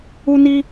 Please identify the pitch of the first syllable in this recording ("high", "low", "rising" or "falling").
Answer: high